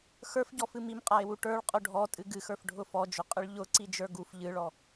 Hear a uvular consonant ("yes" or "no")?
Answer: yes